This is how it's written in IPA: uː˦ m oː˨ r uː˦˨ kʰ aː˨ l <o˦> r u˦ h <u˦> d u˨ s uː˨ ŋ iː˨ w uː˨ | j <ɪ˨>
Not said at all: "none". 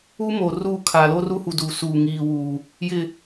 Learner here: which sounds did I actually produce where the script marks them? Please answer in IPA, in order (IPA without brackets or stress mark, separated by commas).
o˦, u˨, ɪ˨